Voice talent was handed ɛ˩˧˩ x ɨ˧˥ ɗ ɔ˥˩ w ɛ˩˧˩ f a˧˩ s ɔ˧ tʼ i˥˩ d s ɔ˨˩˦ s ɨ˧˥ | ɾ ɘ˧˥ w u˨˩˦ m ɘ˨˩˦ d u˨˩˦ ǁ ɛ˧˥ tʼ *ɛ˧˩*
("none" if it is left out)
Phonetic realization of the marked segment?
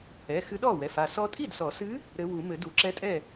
ɛ˥˩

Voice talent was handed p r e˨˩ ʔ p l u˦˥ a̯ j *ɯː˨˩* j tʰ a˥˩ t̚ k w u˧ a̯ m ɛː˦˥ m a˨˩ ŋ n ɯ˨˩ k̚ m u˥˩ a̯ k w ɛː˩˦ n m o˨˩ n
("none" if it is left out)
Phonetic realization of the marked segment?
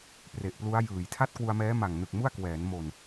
ɯː˨˩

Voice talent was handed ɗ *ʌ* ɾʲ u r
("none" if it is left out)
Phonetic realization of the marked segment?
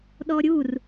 ɔ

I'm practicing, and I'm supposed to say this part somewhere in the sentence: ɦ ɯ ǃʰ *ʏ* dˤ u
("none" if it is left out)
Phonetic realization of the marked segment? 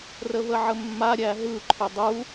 ʏ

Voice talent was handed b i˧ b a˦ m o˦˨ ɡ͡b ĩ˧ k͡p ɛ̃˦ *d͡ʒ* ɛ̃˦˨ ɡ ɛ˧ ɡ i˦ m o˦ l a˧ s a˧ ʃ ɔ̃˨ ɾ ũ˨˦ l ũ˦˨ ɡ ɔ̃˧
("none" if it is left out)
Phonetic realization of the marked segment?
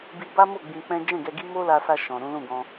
d͡ʒ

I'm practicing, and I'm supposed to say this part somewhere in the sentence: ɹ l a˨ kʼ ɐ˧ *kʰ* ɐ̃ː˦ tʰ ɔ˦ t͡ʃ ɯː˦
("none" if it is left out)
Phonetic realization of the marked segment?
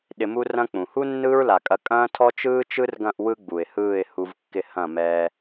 kʼ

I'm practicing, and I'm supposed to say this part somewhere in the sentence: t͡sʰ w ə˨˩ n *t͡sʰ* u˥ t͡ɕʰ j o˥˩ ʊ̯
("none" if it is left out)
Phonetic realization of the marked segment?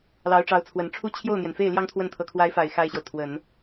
ʈ͡ʂʰ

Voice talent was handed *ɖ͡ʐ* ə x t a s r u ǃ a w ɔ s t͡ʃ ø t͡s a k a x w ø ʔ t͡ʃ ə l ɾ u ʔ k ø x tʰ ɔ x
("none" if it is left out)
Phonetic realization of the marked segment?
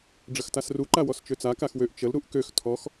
ɖ͡ʐ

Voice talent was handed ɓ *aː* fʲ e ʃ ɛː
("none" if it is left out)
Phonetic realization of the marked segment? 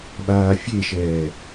aː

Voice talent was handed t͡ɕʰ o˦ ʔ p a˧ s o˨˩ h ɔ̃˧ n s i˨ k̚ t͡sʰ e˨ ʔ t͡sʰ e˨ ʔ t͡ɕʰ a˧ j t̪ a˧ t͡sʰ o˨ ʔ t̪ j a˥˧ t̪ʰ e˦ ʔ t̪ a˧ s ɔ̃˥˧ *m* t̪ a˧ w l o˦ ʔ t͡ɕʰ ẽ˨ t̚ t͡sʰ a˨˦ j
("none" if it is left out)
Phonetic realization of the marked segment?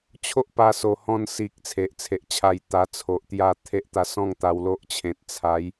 ŋ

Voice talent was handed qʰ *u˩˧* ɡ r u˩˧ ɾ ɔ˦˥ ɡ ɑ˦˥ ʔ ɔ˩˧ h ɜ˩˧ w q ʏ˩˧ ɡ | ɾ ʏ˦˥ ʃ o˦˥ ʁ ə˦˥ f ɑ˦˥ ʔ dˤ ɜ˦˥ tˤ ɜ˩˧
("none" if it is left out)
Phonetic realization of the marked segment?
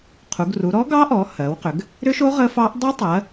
u˩˧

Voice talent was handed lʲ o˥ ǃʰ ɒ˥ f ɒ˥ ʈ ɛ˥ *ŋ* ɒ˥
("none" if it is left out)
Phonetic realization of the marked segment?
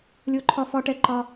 ǃ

